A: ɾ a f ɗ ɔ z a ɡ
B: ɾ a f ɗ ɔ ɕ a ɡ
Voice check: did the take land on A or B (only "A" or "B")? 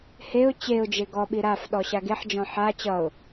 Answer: B